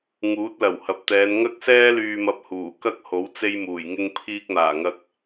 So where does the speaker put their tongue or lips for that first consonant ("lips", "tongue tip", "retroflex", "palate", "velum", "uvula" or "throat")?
velum